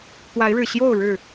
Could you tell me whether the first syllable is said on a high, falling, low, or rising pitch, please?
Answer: rising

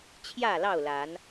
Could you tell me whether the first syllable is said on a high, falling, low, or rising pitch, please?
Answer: falling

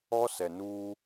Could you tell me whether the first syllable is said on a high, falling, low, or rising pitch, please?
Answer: high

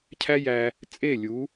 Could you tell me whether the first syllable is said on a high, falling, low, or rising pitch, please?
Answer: high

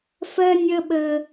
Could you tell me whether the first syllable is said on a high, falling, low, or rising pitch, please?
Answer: high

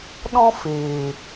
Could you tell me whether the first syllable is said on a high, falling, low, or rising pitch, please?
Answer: high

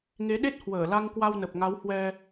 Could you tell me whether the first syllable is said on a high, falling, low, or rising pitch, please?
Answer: rising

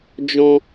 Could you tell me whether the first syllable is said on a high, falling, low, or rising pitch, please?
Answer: high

